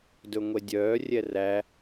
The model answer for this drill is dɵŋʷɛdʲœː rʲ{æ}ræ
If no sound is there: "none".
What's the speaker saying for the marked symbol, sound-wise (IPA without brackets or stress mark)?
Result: ɛ